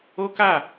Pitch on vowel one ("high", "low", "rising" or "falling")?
high